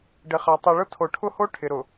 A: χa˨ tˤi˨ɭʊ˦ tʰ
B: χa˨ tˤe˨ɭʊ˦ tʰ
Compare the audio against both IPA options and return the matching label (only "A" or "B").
A